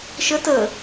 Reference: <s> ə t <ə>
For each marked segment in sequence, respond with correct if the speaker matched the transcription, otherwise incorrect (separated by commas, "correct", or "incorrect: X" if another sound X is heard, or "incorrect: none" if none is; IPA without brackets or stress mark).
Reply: incorrect: ʃ, correct